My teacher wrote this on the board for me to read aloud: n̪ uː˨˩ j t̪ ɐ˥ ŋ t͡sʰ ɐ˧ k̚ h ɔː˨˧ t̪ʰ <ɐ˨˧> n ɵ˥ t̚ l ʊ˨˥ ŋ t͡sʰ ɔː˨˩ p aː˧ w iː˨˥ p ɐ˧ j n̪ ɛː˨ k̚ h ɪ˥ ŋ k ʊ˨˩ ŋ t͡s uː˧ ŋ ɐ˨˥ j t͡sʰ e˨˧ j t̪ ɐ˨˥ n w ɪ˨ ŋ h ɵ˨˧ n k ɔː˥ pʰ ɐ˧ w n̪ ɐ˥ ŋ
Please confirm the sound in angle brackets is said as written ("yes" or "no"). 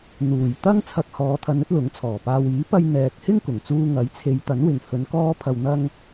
yes